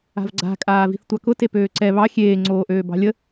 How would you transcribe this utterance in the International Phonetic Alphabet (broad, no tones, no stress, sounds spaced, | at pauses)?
a̤ v ɡ͡ǀ a̤ kʼ aː v i̤ θ tʷ ɑ k ʊ t e p øː ǀ ɛ β ɑ xʲ eː ŋ͡ǀ oː ʔ øː b ɑ̤ lʲ ə